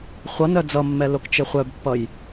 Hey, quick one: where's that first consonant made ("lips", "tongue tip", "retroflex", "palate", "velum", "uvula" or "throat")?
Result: uvula